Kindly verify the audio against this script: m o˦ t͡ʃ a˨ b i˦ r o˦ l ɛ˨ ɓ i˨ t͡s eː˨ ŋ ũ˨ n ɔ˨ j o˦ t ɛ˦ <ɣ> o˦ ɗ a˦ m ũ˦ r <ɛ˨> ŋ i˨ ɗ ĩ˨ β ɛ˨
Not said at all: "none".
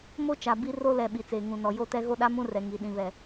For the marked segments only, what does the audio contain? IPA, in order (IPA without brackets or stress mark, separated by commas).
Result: ɣ, ɛ˨